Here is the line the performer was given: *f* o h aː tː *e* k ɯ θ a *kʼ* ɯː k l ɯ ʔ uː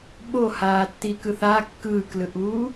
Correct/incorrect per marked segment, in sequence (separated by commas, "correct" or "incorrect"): incorrect, incorrect, incorrect